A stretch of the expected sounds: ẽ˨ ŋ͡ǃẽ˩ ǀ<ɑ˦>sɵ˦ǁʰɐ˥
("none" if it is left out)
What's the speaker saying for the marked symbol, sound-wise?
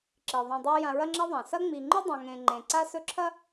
a˦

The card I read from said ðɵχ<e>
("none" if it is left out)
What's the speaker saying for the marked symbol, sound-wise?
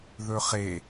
e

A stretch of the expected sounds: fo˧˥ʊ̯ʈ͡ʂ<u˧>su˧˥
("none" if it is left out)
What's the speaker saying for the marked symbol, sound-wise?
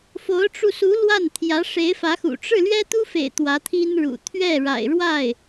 u˧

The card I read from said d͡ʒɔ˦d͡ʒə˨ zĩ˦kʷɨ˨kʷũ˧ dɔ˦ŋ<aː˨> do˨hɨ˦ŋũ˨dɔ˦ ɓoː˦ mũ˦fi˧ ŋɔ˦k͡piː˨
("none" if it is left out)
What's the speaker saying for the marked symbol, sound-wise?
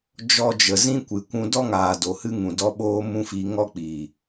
aː˨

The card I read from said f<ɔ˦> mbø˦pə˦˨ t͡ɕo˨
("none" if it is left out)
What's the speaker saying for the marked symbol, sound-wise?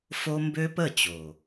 o˦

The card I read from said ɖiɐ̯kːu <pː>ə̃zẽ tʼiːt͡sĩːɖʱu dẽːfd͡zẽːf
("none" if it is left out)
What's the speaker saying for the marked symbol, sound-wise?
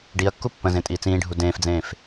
pː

